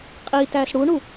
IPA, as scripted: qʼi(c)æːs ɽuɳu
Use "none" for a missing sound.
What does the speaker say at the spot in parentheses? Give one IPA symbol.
t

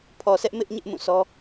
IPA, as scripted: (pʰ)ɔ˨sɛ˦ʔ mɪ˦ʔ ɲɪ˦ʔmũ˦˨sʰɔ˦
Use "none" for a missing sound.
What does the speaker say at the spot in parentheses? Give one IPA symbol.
pʰ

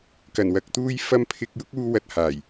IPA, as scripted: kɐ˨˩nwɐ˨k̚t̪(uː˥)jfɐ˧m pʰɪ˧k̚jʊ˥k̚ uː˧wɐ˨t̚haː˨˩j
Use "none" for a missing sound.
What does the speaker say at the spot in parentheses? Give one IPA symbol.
uː˧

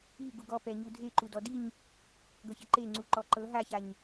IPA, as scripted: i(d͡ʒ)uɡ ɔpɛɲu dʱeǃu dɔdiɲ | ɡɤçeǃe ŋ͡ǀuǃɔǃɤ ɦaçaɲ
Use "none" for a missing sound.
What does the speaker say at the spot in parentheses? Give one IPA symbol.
ɡ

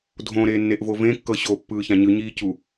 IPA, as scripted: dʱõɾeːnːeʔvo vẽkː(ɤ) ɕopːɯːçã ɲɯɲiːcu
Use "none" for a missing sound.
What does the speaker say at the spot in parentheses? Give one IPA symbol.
ɤ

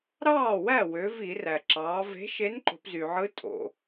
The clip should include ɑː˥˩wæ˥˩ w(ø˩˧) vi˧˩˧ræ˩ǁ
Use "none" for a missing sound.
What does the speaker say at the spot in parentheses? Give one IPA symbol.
ø˩˧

